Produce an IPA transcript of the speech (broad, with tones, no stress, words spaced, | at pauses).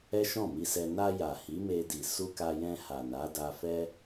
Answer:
ɛ˦ʃɔ̃˦˨mi˧sɛ˧ na˧ ja˨hi˨˦me˧di˨ su˧ka˧jɛ̃˧ ha˨na˨˦da˧fɛ˦